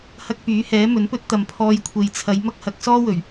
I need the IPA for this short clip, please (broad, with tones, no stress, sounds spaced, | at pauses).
h ɐ˧ k̚ p yː˨˥ h ɛː˨˥ m ɵ˨˥ n p ɵ˥ t̚ t̪ ɐ˨ m pʰ ɔː˧ j kʷʰ e˨ j t͡sʰ ɐ˨˧ j m ɐ˥ k̚ h ɐ˨˥ k̚ s ɔː˥ w ɵ˨˩ ɥ